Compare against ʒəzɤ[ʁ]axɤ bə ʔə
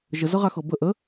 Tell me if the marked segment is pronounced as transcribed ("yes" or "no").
yes